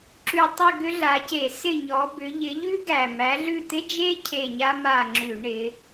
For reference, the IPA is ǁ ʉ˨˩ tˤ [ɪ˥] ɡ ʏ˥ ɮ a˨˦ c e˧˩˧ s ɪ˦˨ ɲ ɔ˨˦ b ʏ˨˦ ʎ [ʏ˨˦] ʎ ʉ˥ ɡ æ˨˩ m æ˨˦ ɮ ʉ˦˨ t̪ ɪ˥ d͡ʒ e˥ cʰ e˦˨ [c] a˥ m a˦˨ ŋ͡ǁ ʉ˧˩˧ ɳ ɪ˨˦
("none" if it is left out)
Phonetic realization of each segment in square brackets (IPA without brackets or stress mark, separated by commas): ɪ˦˨, ɪ˨˦, ɲ